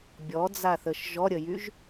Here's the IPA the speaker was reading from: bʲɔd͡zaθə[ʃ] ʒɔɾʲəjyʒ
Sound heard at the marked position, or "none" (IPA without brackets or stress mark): ʃ